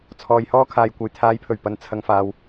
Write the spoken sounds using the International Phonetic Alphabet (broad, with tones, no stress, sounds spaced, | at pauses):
t͡sʰ ɔː˨ j h ɔː˧ kʰ aː˨ j kʷ ɐ˨ j t̪ʰ aː˨˧ j pʰ ɵ˨˩ ɥ p ɐ˨ n t͡sʰ ɐ˨ ŋ f aː˨ w